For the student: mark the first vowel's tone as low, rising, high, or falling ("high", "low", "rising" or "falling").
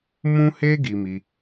high